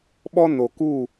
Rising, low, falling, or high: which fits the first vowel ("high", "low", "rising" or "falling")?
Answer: high